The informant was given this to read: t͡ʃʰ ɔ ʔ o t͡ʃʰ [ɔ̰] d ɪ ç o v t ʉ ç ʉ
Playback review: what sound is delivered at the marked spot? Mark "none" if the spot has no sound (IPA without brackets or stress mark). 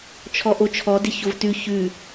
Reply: ɔ